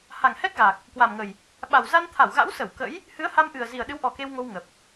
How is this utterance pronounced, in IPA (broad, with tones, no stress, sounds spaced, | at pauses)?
h a˨˩ ŋ h ɛ˦˥ k̚ ɣ a˨˩ k̚ | k w a˨˩ m ŋ ə˨˩ j | ɓ a˨˩ w z a˧ n t̪ʰ a˧˩ w ɣ a̰˧˥ w s ə˧˩ w k ə̰˧˥ j | h ɨ˨˦ ə̯ h a˧ m ʔ ɨ˨˩ ə̯ z i˨˩ ə̯ ɗ ɨ˨˦ w ʔ ɔ˨˩ k e˧ w ŋ o˧ w ŋ ə˨˩ p̚